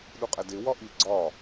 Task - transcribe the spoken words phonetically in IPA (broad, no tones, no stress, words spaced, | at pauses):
ɗuqʼædewɒ ʔi ɡ͡ǀɒ